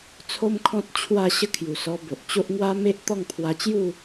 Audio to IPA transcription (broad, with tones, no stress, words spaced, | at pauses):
t͡sʰo˦mkʰɔ̃˦t̚ t͡ɕʰwa˥˧ ɕə˥˧kʰju˨˩sɔ˧bo˨ʔ t͡ɕo˦ʔŋwa˦me˦ʔ t̪ɔ˥˧ŋpʰwa˧t͡ɕju˥˧